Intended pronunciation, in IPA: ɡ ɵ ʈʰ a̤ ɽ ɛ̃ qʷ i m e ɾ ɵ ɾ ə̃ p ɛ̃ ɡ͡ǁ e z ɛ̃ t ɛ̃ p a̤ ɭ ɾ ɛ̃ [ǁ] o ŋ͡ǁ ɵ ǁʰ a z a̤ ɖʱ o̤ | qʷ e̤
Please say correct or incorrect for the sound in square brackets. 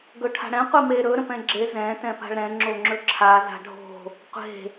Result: incorrect